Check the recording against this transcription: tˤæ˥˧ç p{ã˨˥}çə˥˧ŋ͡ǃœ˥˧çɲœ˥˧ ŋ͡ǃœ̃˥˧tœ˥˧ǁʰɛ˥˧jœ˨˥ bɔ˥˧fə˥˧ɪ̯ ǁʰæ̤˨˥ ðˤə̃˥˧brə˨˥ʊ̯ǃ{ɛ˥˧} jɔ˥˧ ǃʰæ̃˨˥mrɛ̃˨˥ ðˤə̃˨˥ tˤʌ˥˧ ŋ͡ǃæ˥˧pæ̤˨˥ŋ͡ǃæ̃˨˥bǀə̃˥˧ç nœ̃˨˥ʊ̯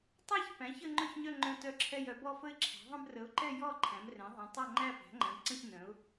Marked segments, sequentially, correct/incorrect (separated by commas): incorrect, correct